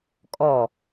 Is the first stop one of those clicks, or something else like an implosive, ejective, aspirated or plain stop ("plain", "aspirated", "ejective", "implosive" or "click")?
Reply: ejective